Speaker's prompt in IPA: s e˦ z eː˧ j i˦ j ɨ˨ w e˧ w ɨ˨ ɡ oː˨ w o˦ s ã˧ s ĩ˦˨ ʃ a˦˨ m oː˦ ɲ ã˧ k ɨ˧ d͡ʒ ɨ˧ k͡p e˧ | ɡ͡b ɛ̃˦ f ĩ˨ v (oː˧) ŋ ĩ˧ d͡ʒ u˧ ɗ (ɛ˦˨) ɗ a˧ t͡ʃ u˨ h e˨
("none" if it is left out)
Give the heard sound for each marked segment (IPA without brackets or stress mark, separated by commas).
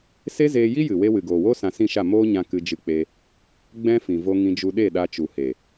o˧, e˦˨